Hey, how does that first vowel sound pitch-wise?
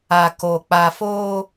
low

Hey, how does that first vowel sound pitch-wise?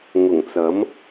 low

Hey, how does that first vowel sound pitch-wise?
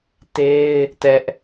high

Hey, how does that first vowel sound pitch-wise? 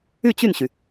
falling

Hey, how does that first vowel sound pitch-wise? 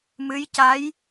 rising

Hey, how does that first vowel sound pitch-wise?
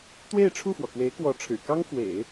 falling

